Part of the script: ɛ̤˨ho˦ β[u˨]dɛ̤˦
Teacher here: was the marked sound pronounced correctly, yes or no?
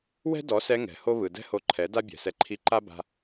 no